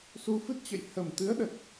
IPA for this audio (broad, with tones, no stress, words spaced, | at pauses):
su˧fɨ˦˥t̚t͡ɕə̰˧˨j hə˨˩mt̪ɨ˨˦ə̯ɗə˨˩t̚